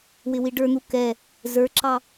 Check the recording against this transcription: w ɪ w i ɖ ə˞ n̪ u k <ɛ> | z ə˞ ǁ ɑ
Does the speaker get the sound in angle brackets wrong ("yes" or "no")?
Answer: no